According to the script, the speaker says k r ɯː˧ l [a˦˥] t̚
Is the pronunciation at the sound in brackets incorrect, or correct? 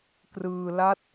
correct